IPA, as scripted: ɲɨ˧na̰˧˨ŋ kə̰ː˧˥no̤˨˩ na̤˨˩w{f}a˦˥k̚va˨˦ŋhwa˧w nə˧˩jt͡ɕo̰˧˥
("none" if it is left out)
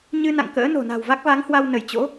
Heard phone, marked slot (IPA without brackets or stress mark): v